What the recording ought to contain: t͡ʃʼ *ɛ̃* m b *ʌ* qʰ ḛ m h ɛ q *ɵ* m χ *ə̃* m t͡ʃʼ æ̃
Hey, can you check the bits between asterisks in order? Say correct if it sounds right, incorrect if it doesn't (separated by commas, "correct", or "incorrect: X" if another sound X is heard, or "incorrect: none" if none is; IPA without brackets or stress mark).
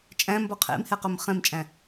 incorrect: æ̃, incorrect: ɒ, correct, incorrect: ɛ̃